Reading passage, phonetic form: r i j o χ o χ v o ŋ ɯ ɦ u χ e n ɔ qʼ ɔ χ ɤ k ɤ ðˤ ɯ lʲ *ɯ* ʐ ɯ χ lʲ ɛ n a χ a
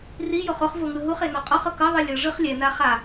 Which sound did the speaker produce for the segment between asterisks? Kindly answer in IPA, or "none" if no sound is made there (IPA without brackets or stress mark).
ɤ